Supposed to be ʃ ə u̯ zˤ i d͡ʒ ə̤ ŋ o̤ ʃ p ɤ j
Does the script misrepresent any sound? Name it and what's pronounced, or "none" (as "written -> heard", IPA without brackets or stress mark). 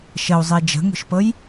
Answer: none